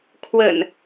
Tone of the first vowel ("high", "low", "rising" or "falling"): low